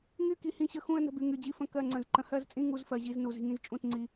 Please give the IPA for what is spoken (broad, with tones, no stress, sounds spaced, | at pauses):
ŋ y˥˧ k i˧ h ĩ˧ ɕ ə˧ x ũ˥˧ ə̯ n ə̤˥˧ b y˧ ŋ y˧ d͡ʑ i˥˧ f ə̃˥˧ k ɜ˥˧ ŋ͡ǀ ə̃˧ z ǃ ə̃˧ h ɜ˥˧ z t͡sʼ ĩ˥˧ ŋ u˥˧ z f ɜ˧ ʑ i˥˧ z n u˧ z i̤˧ ŋ ĩ˧ z t͡ʃʼ ũ˥˧ t ŋ͡ǀ i˧